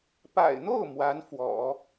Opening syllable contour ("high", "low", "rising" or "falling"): low